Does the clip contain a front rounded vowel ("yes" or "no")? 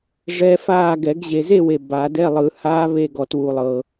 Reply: no